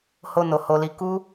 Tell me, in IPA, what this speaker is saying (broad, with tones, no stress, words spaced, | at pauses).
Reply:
ho˧no˨ ho˨li˨˦ ku˦